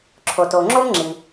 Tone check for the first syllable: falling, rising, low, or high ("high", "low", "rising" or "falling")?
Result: low